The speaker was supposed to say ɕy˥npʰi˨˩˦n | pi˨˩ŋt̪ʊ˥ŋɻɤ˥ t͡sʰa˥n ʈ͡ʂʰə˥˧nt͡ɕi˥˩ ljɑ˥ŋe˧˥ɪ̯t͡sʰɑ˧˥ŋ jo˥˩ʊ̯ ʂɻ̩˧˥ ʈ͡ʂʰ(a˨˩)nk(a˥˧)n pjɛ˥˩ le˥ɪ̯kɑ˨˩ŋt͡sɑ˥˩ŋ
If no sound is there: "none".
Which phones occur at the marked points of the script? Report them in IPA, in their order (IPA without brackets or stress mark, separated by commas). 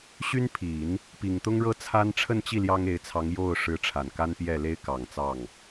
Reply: a˨˩, a˥